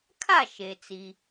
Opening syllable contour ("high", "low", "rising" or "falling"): falling